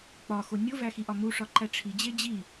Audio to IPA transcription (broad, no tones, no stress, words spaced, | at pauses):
k͡pɒxo nʲovæxiʔɒ muʂɒǃæ ʈ͡ʂʰid͡ʑe d͡ʑi